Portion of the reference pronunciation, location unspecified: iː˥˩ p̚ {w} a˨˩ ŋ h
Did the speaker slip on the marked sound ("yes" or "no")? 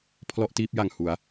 yes